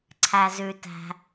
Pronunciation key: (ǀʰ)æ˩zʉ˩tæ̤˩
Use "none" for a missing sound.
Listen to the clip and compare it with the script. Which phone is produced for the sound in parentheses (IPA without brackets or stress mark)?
ǀʰ